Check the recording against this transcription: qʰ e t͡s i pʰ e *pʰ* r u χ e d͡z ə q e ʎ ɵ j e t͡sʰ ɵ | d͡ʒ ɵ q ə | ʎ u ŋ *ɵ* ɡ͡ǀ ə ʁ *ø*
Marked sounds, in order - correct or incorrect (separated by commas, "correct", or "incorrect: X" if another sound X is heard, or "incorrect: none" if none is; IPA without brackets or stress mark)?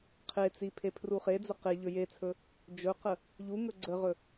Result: correct, correct, incorrect: ɵ